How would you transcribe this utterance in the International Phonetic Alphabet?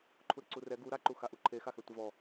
ǃʰ u ɾ e ǀ u r ɛ ɡ u ɾ a ǃ u x a ʔ u ǃʰ e x a x ɛ tʷ ɛ v ɔ

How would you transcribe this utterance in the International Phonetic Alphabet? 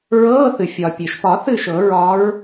ɹ ɤː˧˥˧ θ ɨ˩ fʲ ɒ˩ pʲ e˩ ʃ p ɒ˨˩˦ θ ɨ˥˩ ʃ ɤ˨˩˦ ɹ ɒ˧˥ ɹ

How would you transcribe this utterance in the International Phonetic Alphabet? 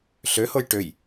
ɬ ø h o j ʈ ø j

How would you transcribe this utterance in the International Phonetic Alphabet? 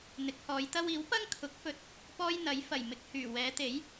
n̪ ɪ˨˥ k̚ h ɔː˨˧ j t̪ ɐ˥ w iː˨˥ w p ɐ˥ ŋ kʰ ʊ˨˥ k̚ f ɵ˧ t̚ | p ɔː˥ j n̪ ɐ˨˥ j f ɐ˨˩ j m ɪ˨ k̚ h yː˨˩ w ɛː˨˧ t̪ e˨˥ j

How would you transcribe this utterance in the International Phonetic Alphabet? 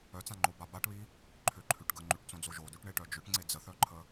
œ t͡s ã ŋ͡ǃ o b a b a ʈ β i | ǃʰ ʏ ǃʰ ʉ ʈ ɡ ə ŋ͡ǃ ʉ ʈ t͡s õ d͡z o ʒ o d ʉ ʈ ɳ e ʈ œ d͡ʒ ʏ ʈ ŋ͡ǀ e d͡z ə θ œ ǃʰ ə

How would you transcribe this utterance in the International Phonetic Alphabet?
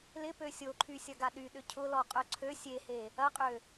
l ɪ p ø sʲ o ǃʰ y sʲ ɐ ɡ a ɗ y ɗ ʏ cʰ ʊ l ɔ qʼ œ ǀʰ ø sʲ e h e | ɐ qʼ ø

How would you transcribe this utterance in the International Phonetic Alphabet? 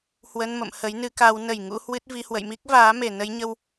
h w ə˧ n m ə̰˧˨ m h ə˨˦ j n ɨ˨˦ k a˨˦ w n ə˨˩ j ŋ ṵ˧˥ h w ɨ˦˥ t̚ v i˧ h w ə̰˧˨ j m i˦˥ k̚ v aː˨˦ m e˨˩ n ə˨˦ j ɲ ə˧ w

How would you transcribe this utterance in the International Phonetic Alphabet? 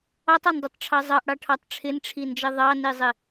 ɑ tˤ ɑ n dˤ i tˤ ʈ͡ʂʰ ɑ zˤ ɑ ʔ ɽ ɑ ʈʰ ɑ tˤ ʈ͡ʂʰ ɪ n ʈ͡ʂʰ i n d͡ʒ ʌ ðˤ ɑ n i zˤ ɪ

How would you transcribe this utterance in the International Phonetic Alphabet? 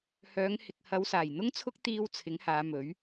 h œː˨˧ ŋ h ɪ˨ k̚ h ɐ˨˧ w s aː˨˩ j n̪ ʊ˥ ŋ t͡sʰ ʊ˥ k̚ t̪ iː˧ w t͡sʰ ɪ˨˥ ŋ h aː˨˧ m ɵ˨˥ ɥ

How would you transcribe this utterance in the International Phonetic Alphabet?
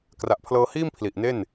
k r a˨˩ ʔ pʰ l ɤː˧ h iː˥˩ m pʰ l i˨˩ ʔ n e˥˩ n

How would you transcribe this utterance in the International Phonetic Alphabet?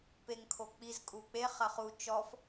p e ŋ kʰ o k͡p i z kʼ u k͡p e χ ɐ χ u t͡ʃ ɔ f

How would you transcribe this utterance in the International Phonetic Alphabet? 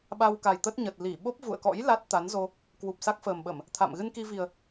ɓ a˧ w k a˨˩ j t̪ ə˦˥ t̚ ɲ ə˨˩ t̚ l i˧˩ ɓ o˦˥ p̚ v ṵ˧˨ ə̯ k ɔ̰˧˥ j l a˦˥ t̚ t̪ a˨˦ n z o˧ | k w u˨˩ p̚ s a˦˥ k̚ f əː˨˩ m ɓ ə˧˩˨ m | t̪ʰ a̰˧˨ m ɣ ɨ˧ n k i˧ v i˨˩ ə̯

